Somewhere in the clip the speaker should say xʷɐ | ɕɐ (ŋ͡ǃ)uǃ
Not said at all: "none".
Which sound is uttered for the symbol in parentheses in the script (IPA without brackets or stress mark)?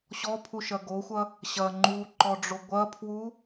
ŋ͡ǃ